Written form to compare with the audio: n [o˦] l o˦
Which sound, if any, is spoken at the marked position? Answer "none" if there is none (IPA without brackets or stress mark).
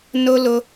o˦